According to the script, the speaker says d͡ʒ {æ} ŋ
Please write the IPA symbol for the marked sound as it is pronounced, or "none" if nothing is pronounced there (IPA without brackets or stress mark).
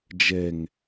ɛ